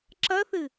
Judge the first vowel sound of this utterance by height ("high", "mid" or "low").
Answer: low